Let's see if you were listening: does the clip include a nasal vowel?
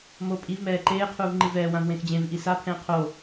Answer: yes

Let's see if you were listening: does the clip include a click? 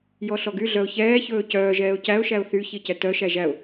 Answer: no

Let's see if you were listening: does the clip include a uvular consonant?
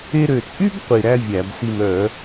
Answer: yes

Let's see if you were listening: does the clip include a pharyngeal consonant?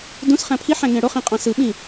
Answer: yes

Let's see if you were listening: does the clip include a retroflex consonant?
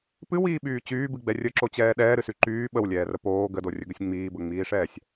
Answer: yes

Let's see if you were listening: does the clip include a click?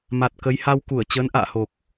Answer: no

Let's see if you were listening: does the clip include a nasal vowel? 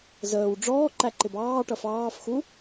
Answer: no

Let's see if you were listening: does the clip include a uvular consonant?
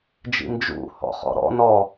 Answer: yes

